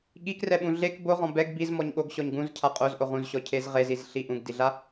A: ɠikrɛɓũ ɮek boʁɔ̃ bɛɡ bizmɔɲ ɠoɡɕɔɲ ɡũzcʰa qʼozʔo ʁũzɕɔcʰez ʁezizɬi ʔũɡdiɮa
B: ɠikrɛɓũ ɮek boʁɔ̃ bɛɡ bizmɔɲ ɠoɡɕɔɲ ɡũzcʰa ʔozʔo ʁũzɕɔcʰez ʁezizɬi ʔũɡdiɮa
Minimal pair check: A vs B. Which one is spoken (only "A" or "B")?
A